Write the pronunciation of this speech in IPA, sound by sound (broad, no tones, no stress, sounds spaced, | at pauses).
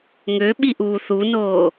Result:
ŋ ø ɓ i ʔ uː θ u n oː